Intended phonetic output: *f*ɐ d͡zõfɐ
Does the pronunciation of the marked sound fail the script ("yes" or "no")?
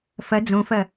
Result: no